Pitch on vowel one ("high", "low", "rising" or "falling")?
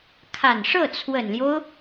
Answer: low